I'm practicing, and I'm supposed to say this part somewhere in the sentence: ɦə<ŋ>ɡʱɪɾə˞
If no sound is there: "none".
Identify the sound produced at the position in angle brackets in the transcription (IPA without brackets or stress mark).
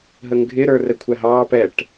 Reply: ŋ